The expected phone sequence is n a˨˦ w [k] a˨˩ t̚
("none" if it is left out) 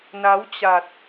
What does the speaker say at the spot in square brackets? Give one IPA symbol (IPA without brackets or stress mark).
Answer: t͡ɕ